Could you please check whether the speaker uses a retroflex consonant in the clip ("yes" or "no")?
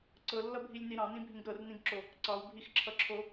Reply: no